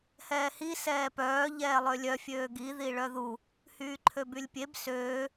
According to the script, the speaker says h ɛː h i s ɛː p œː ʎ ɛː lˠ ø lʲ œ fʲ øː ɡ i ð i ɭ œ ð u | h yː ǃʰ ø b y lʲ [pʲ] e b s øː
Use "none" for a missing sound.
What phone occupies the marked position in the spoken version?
pʲ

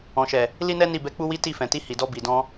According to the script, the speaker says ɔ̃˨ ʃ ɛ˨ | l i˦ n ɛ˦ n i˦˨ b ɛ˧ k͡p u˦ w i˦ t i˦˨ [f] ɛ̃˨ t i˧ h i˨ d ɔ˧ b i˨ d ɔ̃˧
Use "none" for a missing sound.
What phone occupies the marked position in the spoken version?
f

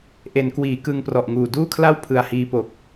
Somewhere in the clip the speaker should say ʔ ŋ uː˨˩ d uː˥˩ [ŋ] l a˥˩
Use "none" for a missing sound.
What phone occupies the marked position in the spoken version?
kʰ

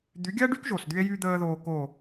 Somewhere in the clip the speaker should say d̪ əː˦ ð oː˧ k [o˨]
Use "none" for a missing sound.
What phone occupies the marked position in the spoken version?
o˦˨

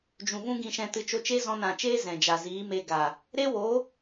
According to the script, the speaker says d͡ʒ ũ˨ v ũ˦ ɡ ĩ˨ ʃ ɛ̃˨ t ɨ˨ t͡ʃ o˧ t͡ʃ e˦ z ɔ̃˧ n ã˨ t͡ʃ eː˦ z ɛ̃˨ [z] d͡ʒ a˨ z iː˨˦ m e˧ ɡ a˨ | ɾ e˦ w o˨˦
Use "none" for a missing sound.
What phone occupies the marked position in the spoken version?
none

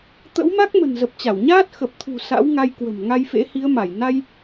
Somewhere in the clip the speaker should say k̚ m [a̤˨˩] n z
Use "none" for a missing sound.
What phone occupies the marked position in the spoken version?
ə̤˨˩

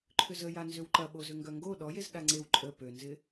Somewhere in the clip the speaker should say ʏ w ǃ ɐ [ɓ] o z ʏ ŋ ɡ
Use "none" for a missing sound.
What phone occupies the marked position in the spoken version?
ɓ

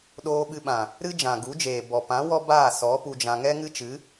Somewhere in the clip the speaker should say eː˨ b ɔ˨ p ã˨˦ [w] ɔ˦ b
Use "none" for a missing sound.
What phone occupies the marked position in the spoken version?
w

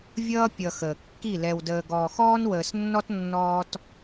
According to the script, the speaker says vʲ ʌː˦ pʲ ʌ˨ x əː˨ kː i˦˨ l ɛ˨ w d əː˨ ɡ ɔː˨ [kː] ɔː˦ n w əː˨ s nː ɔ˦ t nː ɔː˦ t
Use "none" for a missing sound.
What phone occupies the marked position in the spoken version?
x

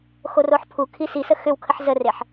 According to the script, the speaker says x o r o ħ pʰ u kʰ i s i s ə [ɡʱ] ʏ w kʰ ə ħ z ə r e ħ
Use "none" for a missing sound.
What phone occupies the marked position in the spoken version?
x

